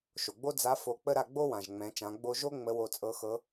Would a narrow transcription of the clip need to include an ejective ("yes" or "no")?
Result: yes